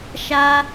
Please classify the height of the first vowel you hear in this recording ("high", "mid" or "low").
low